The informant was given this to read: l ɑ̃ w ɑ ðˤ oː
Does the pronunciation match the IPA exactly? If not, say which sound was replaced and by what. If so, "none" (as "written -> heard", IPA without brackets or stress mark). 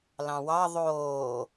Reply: none